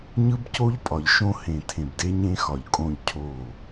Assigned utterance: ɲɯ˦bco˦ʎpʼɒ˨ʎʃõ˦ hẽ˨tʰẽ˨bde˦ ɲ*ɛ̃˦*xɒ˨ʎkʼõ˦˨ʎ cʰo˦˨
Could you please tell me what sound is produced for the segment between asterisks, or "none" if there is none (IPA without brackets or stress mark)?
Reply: ẽ˦